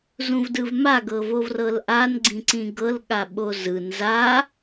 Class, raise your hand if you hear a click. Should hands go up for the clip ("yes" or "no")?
yes